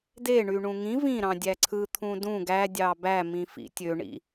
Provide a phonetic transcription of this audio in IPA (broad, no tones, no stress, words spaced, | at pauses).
deɳyɳũ ŋĩ vĩɾɑ̃dʲæ ǀʰɯt̪ʰũ dũ ɡædʲɑ bæmĩfḭ tʲøɳḭ